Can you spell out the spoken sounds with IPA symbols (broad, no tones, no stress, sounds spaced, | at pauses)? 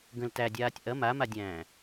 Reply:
ɡ ə̃ l t æ dʲ aː tʲ ʔ ɐ m a m a dʲ æ̃ː